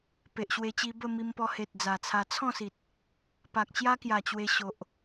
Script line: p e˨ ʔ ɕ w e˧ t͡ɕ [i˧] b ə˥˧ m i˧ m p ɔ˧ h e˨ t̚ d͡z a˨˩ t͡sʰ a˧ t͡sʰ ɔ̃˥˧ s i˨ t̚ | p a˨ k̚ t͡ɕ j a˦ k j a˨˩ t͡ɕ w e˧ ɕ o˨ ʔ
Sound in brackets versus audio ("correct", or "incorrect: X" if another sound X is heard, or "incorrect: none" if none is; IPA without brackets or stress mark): correct